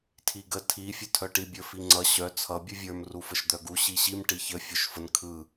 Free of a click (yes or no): no